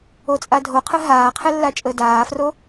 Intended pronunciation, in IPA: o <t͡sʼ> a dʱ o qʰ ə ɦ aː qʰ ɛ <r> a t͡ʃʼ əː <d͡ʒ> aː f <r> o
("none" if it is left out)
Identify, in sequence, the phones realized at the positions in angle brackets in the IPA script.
t͡sʼ, lː, d, r

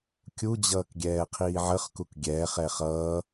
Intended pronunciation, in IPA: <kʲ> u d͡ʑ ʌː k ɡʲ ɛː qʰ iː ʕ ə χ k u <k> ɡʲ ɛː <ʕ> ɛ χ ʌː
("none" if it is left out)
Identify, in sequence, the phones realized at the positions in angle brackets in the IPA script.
kʲ, k, χ

